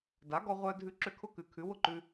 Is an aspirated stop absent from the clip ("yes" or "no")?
no